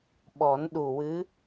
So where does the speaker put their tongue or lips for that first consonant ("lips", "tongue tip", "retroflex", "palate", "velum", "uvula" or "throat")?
lips